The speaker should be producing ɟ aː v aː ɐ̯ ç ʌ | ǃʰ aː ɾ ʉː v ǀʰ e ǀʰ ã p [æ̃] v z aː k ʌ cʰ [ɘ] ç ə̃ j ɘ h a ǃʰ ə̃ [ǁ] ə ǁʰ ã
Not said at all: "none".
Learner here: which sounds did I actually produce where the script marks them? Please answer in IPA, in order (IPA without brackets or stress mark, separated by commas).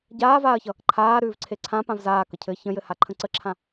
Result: ã, ɘ, ǀ